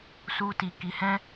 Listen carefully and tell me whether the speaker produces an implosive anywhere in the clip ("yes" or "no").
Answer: no